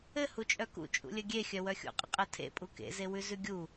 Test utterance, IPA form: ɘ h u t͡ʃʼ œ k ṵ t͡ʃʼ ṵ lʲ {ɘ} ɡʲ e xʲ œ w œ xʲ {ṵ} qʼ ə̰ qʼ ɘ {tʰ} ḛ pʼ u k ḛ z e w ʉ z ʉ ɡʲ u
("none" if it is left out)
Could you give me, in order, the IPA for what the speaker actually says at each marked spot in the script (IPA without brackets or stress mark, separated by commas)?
ɘ, ṵ, tʰ